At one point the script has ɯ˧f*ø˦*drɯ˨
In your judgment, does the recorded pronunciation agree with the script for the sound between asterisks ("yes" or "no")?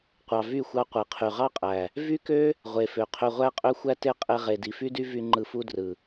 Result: no